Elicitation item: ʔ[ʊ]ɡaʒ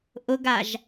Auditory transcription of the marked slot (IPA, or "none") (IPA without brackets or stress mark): ʊ